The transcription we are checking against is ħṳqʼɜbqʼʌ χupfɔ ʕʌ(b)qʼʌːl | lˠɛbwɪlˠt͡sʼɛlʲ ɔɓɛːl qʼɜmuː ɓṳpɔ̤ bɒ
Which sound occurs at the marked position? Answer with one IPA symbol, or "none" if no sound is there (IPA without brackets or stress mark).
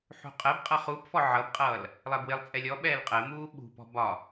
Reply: b